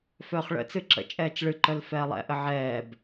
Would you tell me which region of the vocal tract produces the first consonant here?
lips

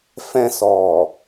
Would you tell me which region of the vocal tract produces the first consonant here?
lips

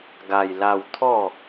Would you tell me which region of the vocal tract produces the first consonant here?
velum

